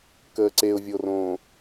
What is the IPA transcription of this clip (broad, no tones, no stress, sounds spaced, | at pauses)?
k əː ǀ e ʊ̯ vʲ o r õː